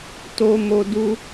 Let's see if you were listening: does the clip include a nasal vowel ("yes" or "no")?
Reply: no